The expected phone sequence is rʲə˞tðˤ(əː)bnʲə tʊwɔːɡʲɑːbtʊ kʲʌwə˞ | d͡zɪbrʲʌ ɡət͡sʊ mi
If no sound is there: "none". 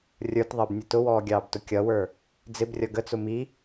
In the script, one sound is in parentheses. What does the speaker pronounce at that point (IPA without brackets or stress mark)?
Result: əː